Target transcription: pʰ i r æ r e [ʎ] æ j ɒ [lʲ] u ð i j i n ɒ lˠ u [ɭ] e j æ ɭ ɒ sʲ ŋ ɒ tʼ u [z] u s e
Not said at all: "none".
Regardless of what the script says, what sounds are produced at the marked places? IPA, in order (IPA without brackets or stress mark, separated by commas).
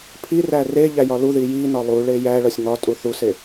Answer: ʎ, l, ɭ, θ